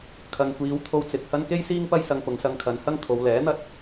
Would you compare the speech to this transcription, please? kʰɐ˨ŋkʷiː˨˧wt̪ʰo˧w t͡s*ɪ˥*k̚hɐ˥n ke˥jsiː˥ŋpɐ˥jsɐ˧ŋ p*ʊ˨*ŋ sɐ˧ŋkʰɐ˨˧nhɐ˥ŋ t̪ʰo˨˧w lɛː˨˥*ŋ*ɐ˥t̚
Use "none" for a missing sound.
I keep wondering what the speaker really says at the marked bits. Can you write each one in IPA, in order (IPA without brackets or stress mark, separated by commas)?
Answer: ɪ˨, ʊ˨˧, n̪